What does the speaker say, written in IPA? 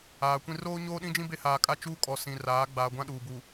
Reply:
aː˨ kʷ ĩ˦ r oː˦ ɲ oː˦ ɗ ĩ˦ d͡ʒ ĩ˦ b e˦ h aː˨ kʼ a˦ t͡ʃ uː˦ kʼ ɔ˨ s ĩ˨ r aː˨˦ ɡ͡b aː˨ ɡʷ ã˦ ɗ uː˨ b u˨

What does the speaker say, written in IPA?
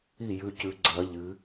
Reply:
i˥˩ j ʉ˩˧˩ c ʉ˩˥ ɡ͡ǀ ɐ˨˩˦ ʎ ɨ˩˥

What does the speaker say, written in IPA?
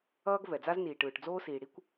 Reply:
ʌː˥ ɡ v ɛ˩ d͡z a˥ z n iː˩ ʈ ɯː˩ ʈ d͡z oː˥ s iː˩ ɽ i˥ kʷ

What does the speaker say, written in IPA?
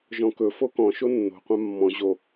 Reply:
ʒ ɔ̃ k ɵ f o k ɔ̃ ʃ o nː o̤ qʷ ã mː ɔ̃ ʑ o

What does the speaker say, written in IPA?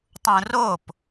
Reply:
tˤ ũ r o p

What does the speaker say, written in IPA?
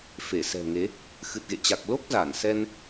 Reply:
f e˧˩ s ɛ̤˨˩ ŋ e˨˦ | x ɨ˨˩ t̚ ɣ ḛ˧˨ t͡ɕ a˨˩ k̚ l o˦˥ k̚ z aː˧˩ n s ɛ˧ n

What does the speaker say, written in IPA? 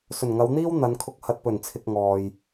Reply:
s ɵ˨˩ n ŋ ɐ˨˧ w n̪ iː˥ w n̪ ɐ˨˧ n kʰ ʊ˧ k̚ h ɐ˨ t̚ p ɵ˨˩ n t͡sʰ ɪ˨ k̚ ŋ ɔː˨ j

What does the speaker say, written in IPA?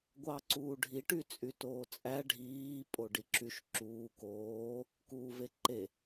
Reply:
ɡʷ ɑ ǀ uː ɖʱ i ʈ y t͡sʼ y t oː t͡sʼ æ ɖʱ iː pʼ o ɖ i ǁ y ʃ ǁ uː k oː | k uː v e ǃ e

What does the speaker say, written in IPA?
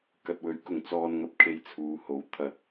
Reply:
k ɐ˨ t̚ w ɵ˨˥ ɥ k ʊ˨ ŋ t͡s ɔː˧ n ŋ ɐ˧ p̚ kʰ e˧ j t͡sʰ uː˨˧ h o˨˥ w t̪ʰ ɐ˧ t̚

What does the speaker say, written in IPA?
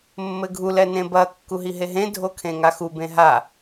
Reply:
mː ɘ ɡʱ u l ɛ n ẽ b ɐ kː u ɦ i ɦ e ɦ ẽ dʱ o kʰ ẽ ŋ a x u b ẽ ɦ a

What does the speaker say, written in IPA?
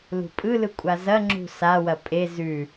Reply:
l ṳ pʼ ɯ l ɯ kʷʼ a z ɐ ŋ͡ǁ ṳ s a w ɐ pʼ e z ʉ

